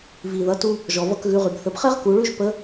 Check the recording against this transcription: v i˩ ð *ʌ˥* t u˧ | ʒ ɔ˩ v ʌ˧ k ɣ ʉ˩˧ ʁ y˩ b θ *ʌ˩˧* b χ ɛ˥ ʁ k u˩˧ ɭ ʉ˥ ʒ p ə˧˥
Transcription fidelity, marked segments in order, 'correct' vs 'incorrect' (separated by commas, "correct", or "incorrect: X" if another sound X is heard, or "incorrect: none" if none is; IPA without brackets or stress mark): incorrect: ʌ˩˧, incorrect: ə˩˧